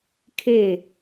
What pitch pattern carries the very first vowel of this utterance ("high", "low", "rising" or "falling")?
falling